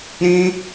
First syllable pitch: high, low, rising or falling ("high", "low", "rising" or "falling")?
high